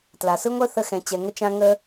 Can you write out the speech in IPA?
t l a˩ s ɯ˥ ŋʷ œ˥ θ ə˧ x ɛ̃˩ t͡ɕ ɛ˩ ŋ ə˧ t͡ʃ ã˧ ŋ ə˧

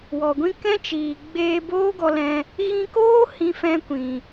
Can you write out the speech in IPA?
w ɔ˨ ɡʷ ĩ˦ k ɛ̃˦ t͡ʃ iː˨ ɡ͡b eː˧ b oː˦ ɡ ɔ˧ l ɛ̃˧ | ɣ ĩ˧ k oː˦ h ĩ˦ f ɛ̃˦ kʷ ĩ˨

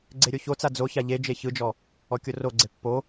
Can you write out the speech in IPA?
ɡ͡ǀ e ɾʲ o ç o t͡s a d͡z o ç a ʎ e d͡ʒ e ç ɯ d͡ʒ ɔ | ɔ kʲ o r o ɡ͡ǀ e pː o

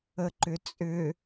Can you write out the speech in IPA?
ə ǃ ʏ t͡sʼ ʏ

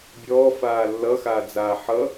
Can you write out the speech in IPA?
bʲ ɔː f aː lː ʌ x aː d͡z aː ħ ʌ

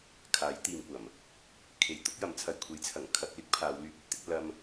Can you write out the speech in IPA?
kʰ aː˨˥ j t̪ iː˨ m kʷ ɐ˨˩ m | kʰ e˨ j t̪ ʊ˨˥ k̚ j ɐ˨˥ m t͡sʰ ɐ˨ j kʷʰ e˨˥ j t͡sʰ ɐ˨˩ ŋ kʰ ɐ˧ k̚ l ɪ˥ k̚ pʰ aː˨˧ w l yː˧ p̚ ɵ˥ t̚ t̪ ɪ˨˥ k̚ l ɐ˥ m

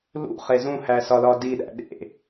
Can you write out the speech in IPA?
l ṵ χ e z ũ h æ s ɒ l ɒ d i ɗ æ̰ ɗ ḛ

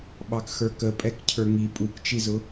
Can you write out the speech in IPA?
ɓ ɑ k x ə˞ k ə pʼ ɛ k cʰ ə˞ ŋ i pʼ u k t͡ʃ i z ʊ

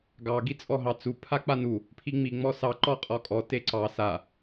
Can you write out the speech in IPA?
ɡ ɑ ɡ i t͡sʼ ɔ ɦ ɑ t͡s u pʰ a k͡p a n u | pʰ i ŋ͡m i ŋ͡m ɔ s ɑ ǃ ɔ qʼ ɔ kʼ ɔ t e ǀ ɑ s a

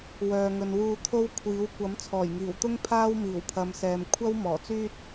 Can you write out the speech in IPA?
w œː˨ ŋ ɵ˨ n w uː˧ t̪ʰ o˥ w kʷʰ iː˨˥ w kʷ ɐ˨˥ m t͡sʰ ɔː˨˩ j ŋ iː˨˩ w t̪ ʊ˥ ŋ pʰ aː˥ w m iː˨˩ w pʰ ɐ˨˧ m s ɛː˨ m kʷʰ ɐ˥ w m ɔː˨˩ t͡s yː˥ t̚

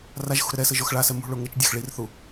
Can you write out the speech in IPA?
r a ʒ x ṳ ɾ ɘ ɾ ɛ s ɘ ʒ o x ɭ a s ɛ m ṳ ɭ o ŋ ɘ t͡ʃ dʲ a x ɭ i r θ u

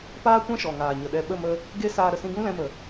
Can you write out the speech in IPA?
p aː˦ kʷ ɛ̃˦ ʃ ɔ˨ ŋ aː˨ ɲ ə˨ ɗ ɛ˧ ɓ ə˦˨ m ə˧ | ɡ e˦ s aː˧ ɾ ə˨ s ĩ˧ ɡ ũ˦ l ɛ̃˧ m ə˨

